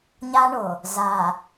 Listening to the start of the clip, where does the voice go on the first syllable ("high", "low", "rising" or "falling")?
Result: high